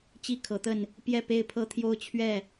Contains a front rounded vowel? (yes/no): no